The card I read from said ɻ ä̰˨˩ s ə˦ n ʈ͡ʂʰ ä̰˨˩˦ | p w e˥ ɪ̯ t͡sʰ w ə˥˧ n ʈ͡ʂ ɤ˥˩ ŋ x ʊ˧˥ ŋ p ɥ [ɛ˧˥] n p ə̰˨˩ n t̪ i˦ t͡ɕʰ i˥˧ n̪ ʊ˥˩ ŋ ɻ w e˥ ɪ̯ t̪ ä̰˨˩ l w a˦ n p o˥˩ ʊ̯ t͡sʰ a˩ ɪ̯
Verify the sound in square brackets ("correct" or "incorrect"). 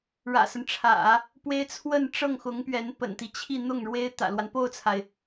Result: correct